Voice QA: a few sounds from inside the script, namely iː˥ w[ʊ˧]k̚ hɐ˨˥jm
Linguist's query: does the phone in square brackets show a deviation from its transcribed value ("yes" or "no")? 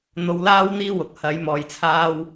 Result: yes